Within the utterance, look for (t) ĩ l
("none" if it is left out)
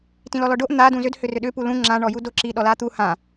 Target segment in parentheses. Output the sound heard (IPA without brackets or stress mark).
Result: t